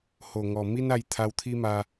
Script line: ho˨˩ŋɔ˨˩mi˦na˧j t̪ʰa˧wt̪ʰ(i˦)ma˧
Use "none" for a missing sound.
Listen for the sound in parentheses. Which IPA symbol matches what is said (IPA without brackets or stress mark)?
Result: i˦